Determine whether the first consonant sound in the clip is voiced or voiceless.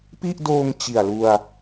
voiceless